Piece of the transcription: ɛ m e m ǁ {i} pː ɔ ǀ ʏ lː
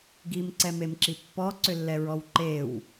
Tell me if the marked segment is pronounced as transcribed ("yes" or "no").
yes